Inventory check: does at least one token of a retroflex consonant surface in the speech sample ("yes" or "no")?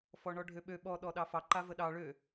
yes